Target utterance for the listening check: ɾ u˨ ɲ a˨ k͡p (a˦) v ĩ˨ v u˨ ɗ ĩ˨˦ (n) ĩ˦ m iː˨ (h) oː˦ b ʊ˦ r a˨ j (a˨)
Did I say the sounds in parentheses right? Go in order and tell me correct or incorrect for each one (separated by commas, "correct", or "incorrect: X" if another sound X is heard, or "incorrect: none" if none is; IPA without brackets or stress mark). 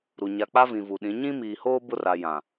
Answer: correct, incorrect: ɲ, correct, incorrect: ã˨